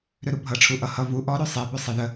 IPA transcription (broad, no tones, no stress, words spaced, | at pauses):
ɾøɾubʱʌ ʈ͡ʂʰuʔʌ hʌ vu ʔɔ ɾøsˤe bøsˤeðə